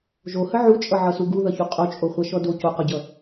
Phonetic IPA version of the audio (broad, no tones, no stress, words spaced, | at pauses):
ʒohə ʕut͡ʃʼʌʕʌsu ɡuðʌçu qʼot͡ʃʼoχʷaʃɔ do coqɔɟʌ